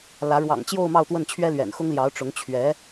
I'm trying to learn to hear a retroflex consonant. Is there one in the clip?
yes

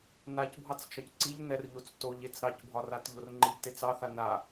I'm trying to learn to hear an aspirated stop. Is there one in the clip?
no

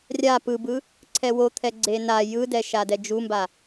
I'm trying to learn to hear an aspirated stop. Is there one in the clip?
yes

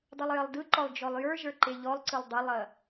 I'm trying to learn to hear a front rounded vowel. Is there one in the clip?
no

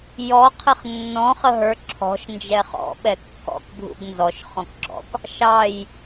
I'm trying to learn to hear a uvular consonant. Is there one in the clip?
yes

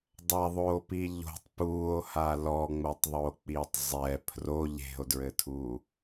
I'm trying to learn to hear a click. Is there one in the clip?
no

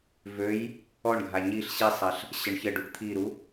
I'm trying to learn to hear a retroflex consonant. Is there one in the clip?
yes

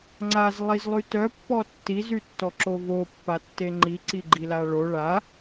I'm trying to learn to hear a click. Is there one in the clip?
yes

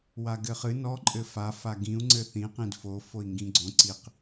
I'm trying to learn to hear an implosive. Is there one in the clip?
no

